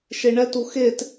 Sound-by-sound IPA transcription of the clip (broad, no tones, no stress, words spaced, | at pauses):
ʃeɳɛtu xet